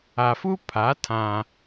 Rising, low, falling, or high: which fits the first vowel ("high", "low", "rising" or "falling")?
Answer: low